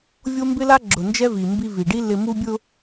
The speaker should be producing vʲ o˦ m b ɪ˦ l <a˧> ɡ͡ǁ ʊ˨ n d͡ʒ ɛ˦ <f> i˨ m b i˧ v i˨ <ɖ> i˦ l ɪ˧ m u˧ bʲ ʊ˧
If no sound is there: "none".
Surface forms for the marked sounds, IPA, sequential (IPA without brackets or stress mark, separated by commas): a˦, v, ɖ